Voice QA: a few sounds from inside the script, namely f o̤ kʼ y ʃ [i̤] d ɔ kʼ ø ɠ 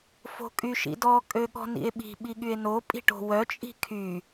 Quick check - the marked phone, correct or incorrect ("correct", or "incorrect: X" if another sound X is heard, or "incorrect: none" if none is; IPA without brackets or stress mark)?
incorrect: ḭ